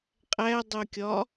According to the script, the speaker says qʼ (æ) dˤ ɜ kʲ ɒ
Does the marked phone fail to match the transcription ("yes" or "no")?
no